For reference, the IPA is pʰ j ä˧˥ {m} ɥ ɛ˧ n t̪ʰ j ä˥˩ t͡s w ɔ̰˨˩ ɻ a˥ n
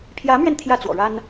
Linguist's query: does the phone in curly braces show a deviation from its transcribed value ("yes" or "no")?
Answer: no